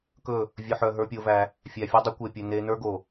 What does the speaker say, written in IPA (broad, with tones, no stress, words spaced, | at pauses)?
kɵ˦˨ | vʲɵ˨ħœ˨ ɦə˞˦pʲo˦væ˦ | fʲæ˨fʲo˦dˤɵ˦ kʷe˨pʲɵ˨ ne˦ nə˞˦ɡo˨